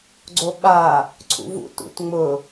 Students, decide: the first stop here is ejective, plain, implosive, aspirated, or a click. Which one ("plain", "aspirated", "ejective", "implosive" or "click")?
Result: click